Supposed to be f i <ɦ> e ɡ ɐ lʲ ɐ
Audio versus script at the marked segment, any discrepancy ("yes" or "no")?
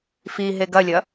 no